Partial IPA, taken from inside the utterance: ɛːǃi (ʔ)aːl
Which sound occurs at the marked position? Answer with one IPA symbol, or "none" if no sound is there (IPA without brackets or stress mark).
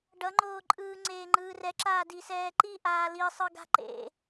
ʔ